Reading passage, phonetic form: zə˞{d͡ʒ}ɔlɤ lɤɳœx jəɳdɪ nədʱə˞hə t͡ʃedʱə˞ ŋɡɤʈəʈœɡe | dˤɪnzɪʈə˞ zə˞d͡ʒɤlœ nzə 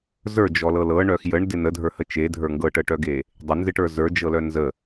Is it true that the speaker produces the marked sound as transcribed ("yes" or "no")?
yes